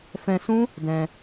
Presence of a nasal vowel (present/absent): present